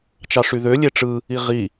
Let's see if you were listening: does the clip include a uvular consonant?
yes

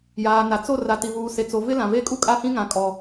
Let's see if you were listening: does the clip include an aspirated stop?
no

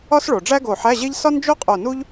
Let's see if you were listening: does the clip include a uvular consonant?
yes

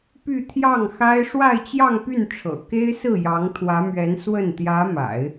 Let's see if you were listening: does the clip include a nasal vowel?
no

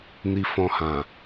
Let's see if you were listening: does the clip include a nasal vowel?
yes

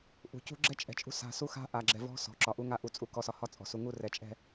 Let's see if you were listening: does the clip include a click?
yes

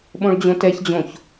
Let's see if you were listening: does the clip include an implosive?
yes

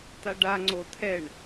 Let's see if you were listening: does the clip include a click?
yes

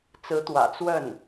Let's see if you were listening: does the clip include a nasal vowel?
no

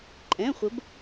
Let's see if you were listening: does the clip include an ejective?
yes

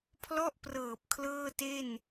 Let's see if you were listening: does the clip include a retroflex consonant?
no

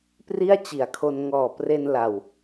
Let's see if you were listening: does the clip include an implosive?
no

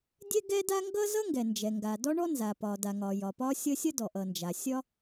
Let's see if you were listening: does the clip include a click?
no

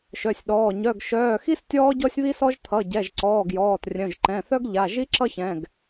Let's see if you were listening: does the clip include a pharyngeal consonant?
no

